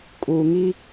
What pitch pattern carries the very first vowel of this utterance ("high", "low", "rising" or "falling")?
low